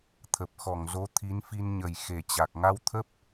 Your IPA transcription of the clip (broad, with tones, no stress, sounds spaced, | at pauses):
t̪ʰ ə˨˩ p̚ x ɔ˧˩ ŋ z o˨˦ t̪ʰ i˨˦ n f i˧ n ɲ ə˨˩ j x e˨˩ t͡ɕ a˨˩ k̚ ŋ a˧ w t̪ʰ ə˦˥ p̚